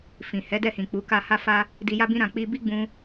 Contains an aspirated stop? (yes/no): no